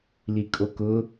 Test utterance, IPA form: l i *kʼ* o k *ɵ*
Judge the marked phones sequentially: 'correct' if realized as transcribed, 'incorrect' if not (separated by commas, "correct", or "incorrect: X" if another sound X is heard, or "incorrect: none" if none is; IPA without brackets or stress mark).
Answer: correct, incorrect: ʊ